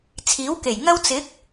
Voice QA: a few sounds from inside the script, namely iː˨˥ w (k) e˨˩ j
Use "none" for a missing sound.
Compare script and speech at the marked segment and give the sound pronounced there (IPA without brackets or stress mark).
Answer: k